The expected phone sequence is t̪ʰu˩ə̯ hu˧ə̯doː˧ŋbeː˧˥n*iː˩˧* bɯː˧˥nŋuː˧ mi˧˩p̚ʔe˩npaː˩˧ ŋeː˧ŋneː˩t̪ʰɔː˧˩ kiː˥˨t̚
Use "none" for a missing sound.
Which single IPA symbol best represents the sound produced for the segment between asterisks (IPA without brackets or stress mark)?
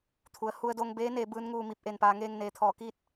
eː˩˧